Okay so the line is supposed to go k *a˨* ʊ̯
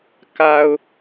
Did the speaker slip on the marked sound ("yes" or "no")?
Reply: no